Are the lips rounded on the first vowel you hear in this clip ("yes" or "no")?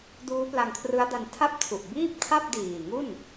yes